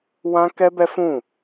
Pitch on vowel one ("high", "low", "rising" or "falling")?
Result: high